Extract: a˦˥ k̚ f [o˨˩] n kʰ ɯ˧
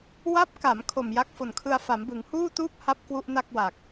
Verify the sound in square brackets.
correct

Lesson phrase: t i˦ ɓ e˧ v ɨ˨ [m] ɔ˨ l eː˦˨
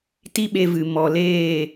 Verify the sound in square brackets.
correct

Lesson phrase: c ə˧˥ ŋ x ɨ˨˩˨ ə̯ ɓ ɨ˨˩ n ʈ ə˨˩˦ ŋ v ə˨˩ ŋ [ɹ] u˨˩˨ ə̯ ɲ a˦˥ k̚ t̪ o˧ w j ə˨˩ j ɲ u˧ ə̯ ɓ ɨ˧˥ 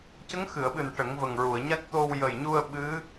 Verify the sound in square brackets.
correct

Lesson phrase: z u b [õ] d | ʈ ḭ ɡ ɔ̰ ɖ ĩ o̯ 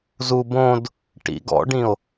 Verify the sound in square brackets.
correct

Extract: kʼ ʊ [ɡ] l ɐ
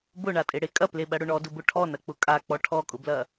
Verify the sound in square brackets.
incorrect: b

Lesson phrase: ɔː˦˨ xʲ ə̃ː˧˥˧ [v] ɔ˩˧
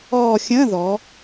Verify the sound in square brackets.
incorrect: ð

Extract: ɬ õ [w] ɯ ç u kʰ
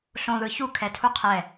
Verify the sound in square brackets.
incorrect: ð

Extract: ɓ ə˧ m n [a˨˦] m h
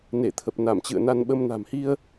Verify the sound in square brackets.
incorrect: a̤˨˩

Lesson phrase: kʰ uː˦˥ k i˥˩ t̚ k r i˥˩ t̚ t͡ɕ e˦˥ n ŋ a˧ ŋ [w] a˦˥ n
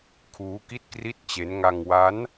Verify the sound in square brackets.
correct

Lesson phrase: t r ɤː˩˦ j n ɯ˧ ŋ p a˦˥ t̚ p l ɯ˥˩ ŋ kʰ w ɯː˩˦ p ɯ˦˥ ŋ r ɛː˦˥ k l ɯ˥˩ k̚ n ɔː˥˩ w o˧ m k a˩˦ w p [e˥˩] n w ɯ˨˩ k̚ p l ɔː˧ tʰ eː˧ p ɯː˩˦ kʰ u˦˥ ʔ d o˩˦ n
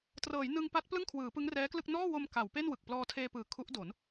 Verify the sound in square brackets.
correct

